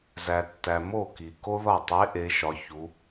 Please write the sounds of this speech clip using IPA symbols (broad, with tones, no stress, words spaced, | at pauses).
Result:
zæ˨ tːæ˨ mo˥˩ ki˨ ko˥ðɒ˥˩ tˤe˧˥ ʔe˧˥ʃɒ˧˥ çu˧˥